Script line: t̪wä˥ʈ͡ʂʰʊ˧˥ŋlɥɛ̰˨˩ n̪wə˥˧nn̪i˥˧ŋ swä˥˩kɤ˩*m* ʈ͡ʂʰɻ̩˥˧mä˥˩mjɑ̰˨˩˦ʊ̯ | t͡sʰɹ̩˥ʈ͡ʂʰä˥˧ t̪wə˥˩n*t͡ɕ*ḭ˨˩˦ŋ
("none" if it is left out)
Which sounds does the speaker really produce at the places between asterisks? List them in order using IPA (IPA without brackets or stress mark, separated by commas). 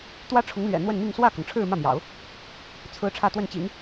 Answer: ŋ, t͡ɕ